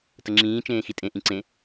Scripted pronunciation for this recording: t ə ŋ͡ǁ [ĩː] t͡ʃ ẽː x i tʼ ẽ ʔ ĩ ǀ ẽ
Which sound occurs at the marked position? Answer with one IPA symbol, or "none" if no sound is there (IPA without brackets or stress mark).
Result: ĩː